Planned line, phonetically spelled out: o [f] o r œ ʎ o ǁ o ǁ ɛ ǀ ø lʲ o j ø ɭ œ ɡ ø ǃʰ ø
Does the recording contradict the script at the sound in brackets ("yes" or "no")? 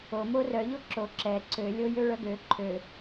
yes